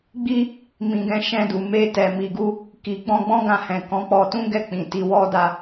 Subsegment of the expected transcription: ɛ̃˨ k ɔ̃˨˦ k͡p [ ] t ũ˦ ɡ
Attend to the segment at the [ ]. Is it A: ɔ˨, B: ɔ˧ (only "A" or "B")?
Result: B